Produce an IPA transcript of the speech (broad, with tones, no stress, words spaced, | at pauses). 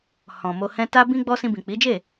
hɔ̃˨mo˧hɛ̃˦ ta˦bĩ˦ɡ͡bɔ˦ sĩ˧bĩ˨k͡pi˨˦d͡ʒe˦˨